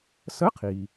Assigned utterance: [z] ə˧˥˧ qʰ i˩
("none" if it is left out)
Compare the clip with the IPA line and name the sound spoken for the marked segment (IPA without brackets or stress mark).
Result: s